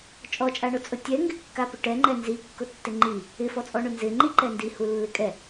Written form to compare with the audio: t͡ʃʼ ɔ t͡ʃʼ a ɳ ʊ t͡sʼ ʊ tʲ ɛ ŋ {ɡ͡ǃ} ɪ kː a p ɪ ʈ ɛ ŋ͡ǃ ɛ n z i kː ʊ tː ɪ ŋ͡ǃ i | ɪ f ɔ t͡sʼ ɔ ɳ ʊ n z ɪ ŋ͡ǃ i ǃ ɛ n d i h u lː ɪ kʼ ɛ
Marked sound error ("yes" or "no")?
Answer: yes